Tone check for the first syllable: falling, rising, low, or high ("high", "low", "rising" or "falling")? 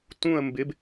falling